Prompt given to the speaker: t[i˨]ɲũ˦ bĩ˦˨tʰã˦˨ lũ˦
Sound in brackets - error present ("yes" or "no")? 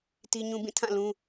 yes